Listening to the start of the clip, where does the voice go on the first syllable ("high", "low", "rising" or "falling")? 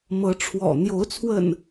rising